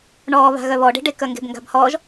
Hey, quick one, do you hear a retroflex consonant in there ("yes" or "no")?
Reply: yes